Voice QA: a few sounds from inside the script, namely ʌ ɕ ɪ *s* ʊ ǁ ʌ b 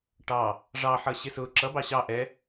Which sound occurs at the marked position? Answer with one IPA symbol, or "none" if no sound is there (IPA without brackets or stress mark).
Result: s